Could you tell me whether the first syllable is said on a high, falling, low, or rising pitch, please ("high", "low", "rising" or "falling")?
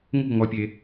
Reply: falling